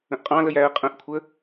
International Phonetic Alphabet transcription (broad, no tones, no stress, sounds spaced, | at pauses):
ə̃ ʔ qʼ ɑ̃ l ə j æ ə̯ qʼ ə̃ ʔ kʷʰ ə